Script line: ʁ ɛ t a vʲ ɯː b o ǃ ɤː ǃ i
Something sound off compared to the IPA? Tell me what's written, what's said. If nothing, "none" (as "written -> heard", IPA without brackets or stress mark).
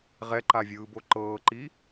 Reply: t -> ǃ